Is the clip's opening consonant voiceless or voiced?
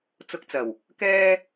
voiceless